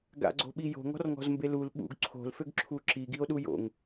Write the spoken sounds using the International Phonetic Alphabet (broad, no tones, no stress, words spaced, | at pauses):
ɡa̰ɡ͡ǀo̤ɓi jo̤ŋɔ̤rŋɔ̤zmbe lul ɓṵɡ ǀʰo̤lføɡǁʰu ǁiɡio̯ɗu jo̰ŋ